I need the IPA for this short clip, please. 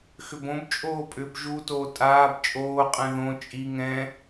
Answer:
xʏbõb t͡ʃʼoːpʼʏb ʒutoː tʼaːb t͡ʃʼoːqʼɛ̃ ðõ t͡ʃʼi ŋɛ̃

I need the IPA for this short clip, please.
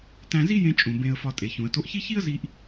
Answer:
tæ̃˧zi˥jẽ˧t͡ʃʼũ˩ bẽ˧ə̯fɒ˧ tʼe˩çũ˩ə̯to˧ʔçi˥ çi˥ə̯zi˧ʔ

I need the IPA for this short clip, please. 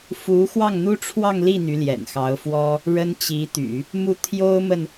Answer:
fu˧˥ xwɑ˥˩ŋn̪u˥ʈ͡ʂʰwɑ˥˧ŋ li˥˩ n̪y˧˥ljɛ̰˨˩nxɑ˧˥ʊ̯fwɔ˥ | ɻə˥nt͡ɕi˧˥t̪y̰˨˩˦ | mu˥˩t̪ʰjo˥ʊ̯mə˨n

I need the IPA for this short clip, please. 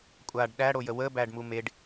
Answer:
kʷʼaɖ ɗæɽojə wəbæɖmu meɖ

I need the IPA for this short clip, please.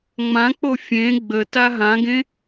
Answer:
ŋ͡mãk͡po fʲẽ ɡ͡bə taɦãɡẽ

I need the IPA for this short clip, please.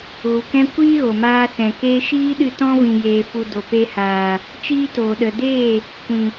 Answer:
ɣu˨kɛ̃˦ kʷiː˦ ɣo˨ maː˧sɛ̃˨keː˦ ʃiː˦ɗɨ˧ tɔ̃˦vĩ˨jeː˨fu˨ do˨pe˧haː˨ | t͡ʃiː˦toː˨ ɗə˨deː˦˨ | kʷĩ˨

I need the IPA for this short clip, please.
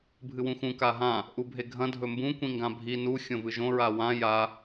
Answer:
bʱɨwũxũ kaɦã | ʔubʱeɡʱɐ̃ dʱɵmbũ kʷĩŋɡãbʱi nu xʲõvɨʒõ ɹawã ja

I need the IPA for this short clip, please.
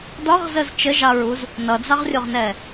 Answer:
dɒʁzəz t͡ʃəʒɑɹuz | nʌd͡zɑʁrʲʊʁnɛ

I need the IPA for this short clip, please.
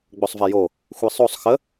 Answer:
ɡ͡bosˤvɛjo | xʷisˤosˤ xə

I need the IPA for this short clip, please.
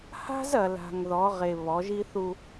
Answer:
ha̤˦zɐ˨ la̤˨ŋ ðɔ˨˦ʁe˨ βɔ˨˦ʒi˦θu˦

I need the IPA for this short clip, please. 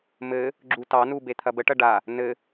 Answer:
mɘ | ɡ͡ǁutɑnu bet̪ʰɐbəʈɐ ɖa | nɘ

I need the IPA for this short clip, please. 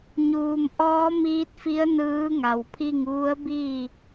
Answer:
ɲuː˩mʔɔː˧˥ miː˧˥t̚fi˧˥ə̯ nɯː˧˥ŋa˩wpʰi˥˨ŋ ʋu˧˥ə̯biː˥˨

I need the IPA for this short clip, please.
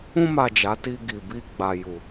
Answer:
ũ˧ma˨ d͡ʒa˨˦ti˧ ɡi˨bi˧ ɡ͡ba˨ju˨

